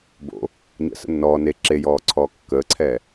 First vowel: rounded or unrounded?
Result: rounded